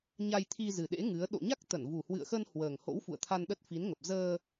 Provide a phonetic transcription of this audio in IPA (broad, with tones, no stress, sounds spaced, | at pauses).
ɲ a˧ j t̪ʰ i˧ z ɨ˨˩ ɗ ḛ˧˥ ŋ ɨ˨˦ ə̯ ɗ o̰˧˨ ɲ a˦˥ k̚ t̪ ə˧˩ n v u˨˩ h w ɨ̰˧˨ ə̯ x ə˧ n h w əː˨˩ ŋ h o̰˧˥ w f ṵ˧˨ ə̯ t̪ʰ a˧ n ɗ ə˦˥ t̚ f i˨˦ n ŋ ə˨˩ p̚ z əː˧